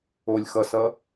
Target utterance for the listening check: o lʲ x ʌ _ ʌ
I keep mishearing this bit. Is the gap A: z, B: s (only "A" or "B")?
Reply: B